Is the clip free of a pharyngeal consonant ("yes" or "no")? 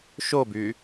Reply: yes